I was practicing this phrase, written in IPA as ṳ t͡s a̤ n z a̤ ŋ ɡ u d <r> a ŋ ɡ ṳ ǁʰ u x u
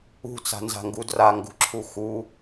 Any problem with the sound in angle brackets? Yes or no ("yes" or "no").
no